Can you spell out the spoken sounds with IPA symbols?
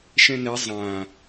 ʃ ɛ̃ n ɛ zˤ ã

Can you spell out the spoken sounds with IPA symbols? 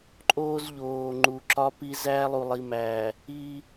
ǃʼ oː˦ z ʎ oː˨ ŋ͡ǃ u˨ ǁ ɒ˦ p i˦ z æː˦ lˠ u˨ lˠ i˨ m æː˨ | iː˦

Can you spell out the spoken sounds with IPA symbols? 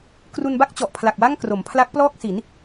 k r u˧ n b a˥˩ k̚ t͡ɕ ɔ˨˩ ʔ pʰ l a˨˩ k̚ w a˥˩ ŋ k r o˩˦ m pʰ l a˦˥ k̚ p l ɔː˥˩ k̚ s i˩˦ n

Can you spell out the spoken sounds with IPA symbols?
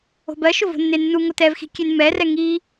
o̤ b ɜ ʃ ʊ v o̤ nː e nː u ŋ o t ɛ v x i̤ kʲ e n m ɛ r ɛ ŋ i

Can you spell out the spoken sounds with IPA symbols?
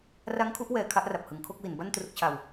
r a˦˥ ŋ kʰ u˦˥ ʔ w ɛː˨˩ kʰ a˥˩ ʔ r a˨˩ p̚ h ɯ˩˦ ŋ kʰ o˥˩ k̚ w i˩˦ n b a˥˩ n t r u˦˥ k̚ t͡ɕʰ a˧ w

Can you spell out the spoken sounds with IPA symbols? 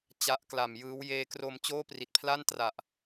t͡ɕ a˦˥ ʔ k l a˨˩ m j ɯː˦˥ w j eː˧ k r o˧ m t͡ɕ oː˥˩ p r i˨˩ t̚ pʰ l a˥˩ n t r a˨˩ ʔ

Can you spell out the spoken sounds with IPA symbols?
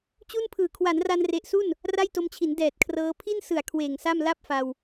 t͡ɕ u˥˩ n pʰ ɯː˨˩ kʰ w a˩˦ n r a˧ n r e˨˩ ʔ s u˥˩ n | r a˥˩ j t o˧ m t͡ɕʰ i˩˦ n d ɛː˨˩ t̚ kʰ r ɤː˦˥ pʰ i˥˩ n s ɯ˨˩ a̯ kʰ w eː˨˩ ŋ s a˥˩ m l a˥˩ p̚ f a˧ w

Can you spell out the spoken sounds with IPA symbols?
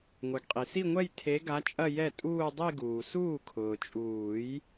ŋʷ ɛ˩ ɡ qʼ i˩ s i˥˧ ŋʷ ɛ˥˧ j tʰ e˧˥ ɡ a˧˥ t͡ʃʼ ɐ˥˧ j ɛ˥˩ tʼ uː˥˧ dˤ i˥˧ ɡ uː˩ s uː˥˩ kʰ ʊː˩ t͡ʃʼ uː˨˩˦ j

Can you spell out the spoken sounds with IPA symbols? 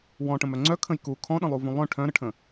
w ɔ̃ ʈ ə̃ m œ ŋ͡ǀ œ kʰ ə̃ j k u kʰ ɔ̃ ɗ ə̃ lˠ u v ũ lˠ œ̃ ʈʰ œ̃ ɾ ə ʈʰ ə̃

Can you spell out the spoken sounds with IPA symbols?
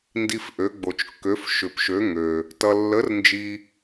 n d i˧ f ʔ ø˧˥ ɡ͡b o˧ t͡ʃ kː ø˧˥ f ʃ ʏ˧ p ʃ ø˧˥ ŋ ø˧ | t ʌ˧ lː ə˧˥ r n d͡ʒ i˧

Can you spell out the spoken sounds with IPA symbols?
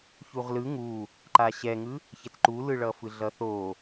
ç u ʁ l ɯ ŋ u | ǃ a ɕ ɛ ŋ ɯ | ç ɛ t ǃ u l ɯ ɭ ʌ f ɯ ɮ ʌ θ o

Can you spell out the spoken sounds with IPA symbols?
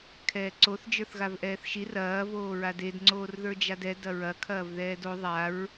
kʰ ɛː ǀ o θ d͡ʒ ə˞ θ ɣ a v ʔ ɛː θ ʃ i r ɐː v oː ɹ a d e d ŋ͡ǀ oː r ð ə˞ d͡ʒ a d ɛ d ɐ ɹ ɐ kʰ ɐː v ð ɛː d o ðˤ a ɹ

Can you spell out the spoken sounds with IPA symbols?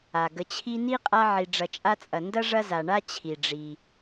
a˩ ɡ ə˨ t͡ɕʰ i˦ n i˥ qʼ a˦ ʕ i˨ ɖ͡ʐ ɐ˨ t͡ʃʼ a˦ t͡sʼ ɐ˨ n d ɐ˥ ʐ ɐ˦ z a˨ ɳ a˥ t͡ɕʰ i˩ ɖ͡ʐ i˩

